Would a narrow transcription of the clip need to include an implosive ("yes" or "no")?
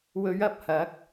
no